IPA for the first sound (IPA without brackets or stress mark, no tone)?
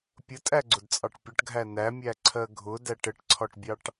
pʲ